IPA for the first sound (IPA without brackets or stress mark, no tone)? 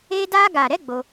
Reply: e